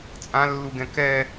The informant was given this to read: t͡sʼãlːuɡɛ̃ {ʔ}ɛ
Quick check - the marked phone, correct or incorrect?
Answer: incorrect